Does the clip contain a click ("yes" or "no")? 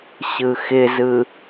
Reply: no